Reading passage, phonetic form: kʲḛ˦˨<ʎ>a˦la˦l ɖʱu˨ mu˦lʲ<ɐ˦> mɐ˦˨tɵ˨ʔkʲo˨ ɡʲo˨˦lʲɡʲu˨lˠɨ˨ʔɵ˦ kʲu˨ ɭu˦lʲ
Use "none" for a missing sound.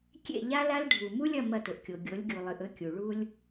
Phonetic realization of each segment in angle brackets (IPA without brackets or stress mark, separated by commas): ʎ, ɐ˦˨